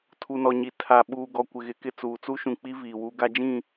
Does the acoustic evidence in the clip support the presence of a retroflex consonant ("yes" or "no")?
no